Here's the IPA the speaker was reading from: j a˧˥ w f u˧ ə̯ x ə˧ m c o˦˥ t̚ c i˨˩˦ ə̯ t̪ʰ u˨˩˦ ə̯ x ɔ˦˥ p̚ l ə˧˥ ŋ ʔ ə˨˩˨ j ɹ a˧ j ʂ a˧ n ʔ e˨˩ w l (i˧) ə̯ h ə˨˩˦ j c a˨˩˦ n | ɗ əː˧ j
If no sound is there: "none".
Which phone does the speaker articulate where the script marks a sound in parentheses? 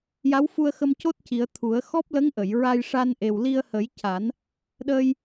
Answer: i˧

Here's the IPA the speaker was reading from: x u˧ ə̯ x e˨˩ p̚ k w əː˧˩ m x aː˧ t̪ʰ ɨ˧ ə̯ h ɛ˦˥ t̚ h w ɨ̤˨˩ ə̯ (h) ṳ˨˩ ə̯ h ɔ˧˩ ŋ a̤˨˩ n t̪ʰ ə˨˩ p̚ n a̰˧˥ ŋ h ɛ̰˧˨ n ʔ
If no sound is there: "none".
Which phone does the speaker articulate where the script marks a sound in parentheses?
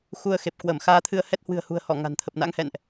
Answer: h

